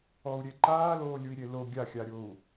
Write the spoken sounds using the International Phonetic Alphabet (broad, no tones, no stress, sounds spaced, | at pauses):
ɔ u̯ ɾʲ e ǃ aː l oː lʲ u i̯ ɾʲ e l o ɡʲ a xʲ a ɾʲ o u̯